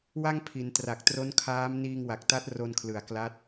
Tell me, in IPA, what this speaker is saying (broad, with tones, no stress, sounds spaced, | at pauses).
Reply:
w a˥˩ ŋ pʰ i˩˦ n t r a˨˩ k̚ t r o˦˥ n kʰ aː˦˥ m n iː˧ ŋ w a˨˩ k̚ t a˦˥ t̚ r o˧ n kʰ l ɯ˨˩ a̯ k l a˦˥ t̚